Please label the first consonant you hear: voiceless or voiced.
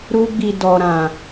voiced